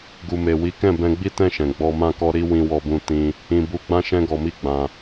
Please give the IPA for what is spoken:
ɡu˨ me˨wi˨˦kɛ̃˦˨ bɛ̃˧ɡ͡bi˦tɛ̃˦˨ʃɛ̃˨ ɡ͡bɔ˧mã˦kɔ˦ ɾi˦ wĩ˧wɔ˧bũ˧ tĩ˧ | ĩ˧bu˧ɡ͡bã˦ʃɛ̃˦ ɡɔ˧mi˦ɡ͡bã˧

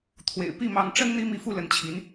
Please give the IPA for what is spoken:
t̪ʰwḛ˨˩ɪ̯ pi˥˩mɑ˧˥ŋ ʈ͡ʂə˥n n̪i˥mi˧˥fu˥˩ lə˧˥nt͡ɕʰi˧˥n

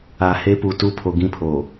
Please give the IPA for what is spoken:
a˨he˦ pu˨tu˦˨pʰo˨ ɡĩ˦pʰo˨

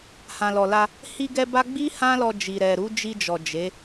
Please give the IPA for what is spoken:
hã˨lɔ˨la˧ | hi˧ɡɛ˧ ba˦ ɡ͡bi˦ hã˦lɔ˧ d͡ʒi˨ɾɛ˨ɾu˨˦ d͡ʒi˧d͡ʒɔ˨ d͡ʒe˨˦

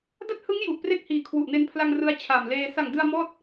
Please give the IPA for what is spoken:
da˥˩t̚hɯ˦˥ŋ ju˨˩ʔpre˥˩k̚hiː˨˩ kʰwu˨˩ʔne˧npʰla˧ŋ rɯ˦˥a̯t͡ɕʰa˨˩mleː˧ sa˨˩ŋdɯ˧a̯ mɔː˥˩t̚

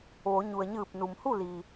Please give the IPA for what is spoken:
ʋo˩˧ ɲu˩ə̯ɲɯː˧˩p̚ nu˩mhu˥˨li˩

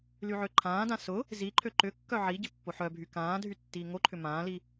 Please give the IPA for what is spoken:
lyʕøǃʰãːdã sʊ | ziǃʰø ǃʏ kːœʕiɟɪ pːoħœbʱy kãː dʱytːiːŋoǃʰʏ mãːli

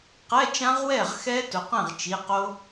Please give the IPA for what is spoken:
qɛ˧˥˧t͡ʃã˦˥ʁwɛ˥˩ʁxɛ˦˥ tʊ˩˧qɛ̃˥˩ʁ t͡ʃi˩˧˩qo˦˥

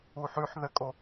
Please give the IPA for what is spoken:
uħʉħ ðɘkʼo

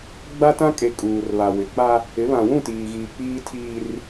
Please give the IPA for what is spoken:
ɡ͡ba˦tã˦ kʼe˨ kʼuː˨r βa˨wɪ˨k͡pa˦ | ɪ˨˦βã˨ wũ˦˨tiː˨ɣiː˨ k͡piː˦tʰiː˦r

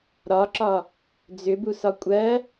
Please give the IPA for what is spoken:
ɾɒǁɒ | d͡zʏbusɒ kʷʼɜ

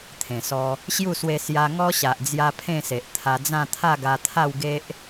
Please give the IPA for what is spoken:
t̪ʰẽ˨˩sɔ˧ | ɕju˥˧swe˧ sja˧ŋɔ˦ɕa˨ʔd͡zja˧ pʰẽ˥˧se˨ʔ t̪ʰa˧d͡zã˥˧ t̪ʰa˥˧ɡa˧t̪ʰa˥˧wɡe˦ʔ

